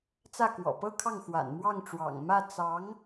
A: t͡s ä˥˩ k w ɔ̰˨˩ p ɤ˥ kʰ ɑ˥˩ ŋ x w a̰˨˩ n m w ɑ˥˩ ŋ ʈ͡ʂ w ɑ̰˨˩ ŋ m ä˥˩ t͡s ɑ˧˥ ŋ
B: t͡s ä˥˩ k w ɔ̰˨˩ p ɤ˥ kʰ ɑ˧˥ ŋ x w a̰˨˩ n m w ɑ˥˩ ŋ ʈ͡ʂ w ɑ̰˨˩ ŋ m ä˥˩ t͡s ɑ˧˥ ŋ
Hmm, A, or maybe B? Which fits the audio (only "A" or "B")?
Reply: A